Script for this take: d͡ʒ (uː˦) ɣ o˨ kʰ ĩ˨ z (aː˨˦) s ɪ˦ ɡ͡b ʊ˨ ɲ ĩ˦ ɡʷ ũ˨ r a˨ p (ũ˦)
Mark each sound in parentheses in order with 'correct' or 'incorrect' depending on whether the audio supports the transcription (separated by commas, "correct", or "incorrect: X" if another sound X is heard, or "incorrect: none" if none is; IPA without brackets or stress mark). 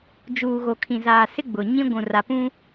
incorrect: uː˨, incorrect: aː˨, correct